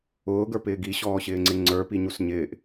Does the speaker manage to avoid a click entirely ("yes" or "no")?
no